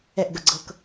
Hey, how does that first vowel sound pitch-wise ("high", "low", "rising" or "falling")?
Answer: falling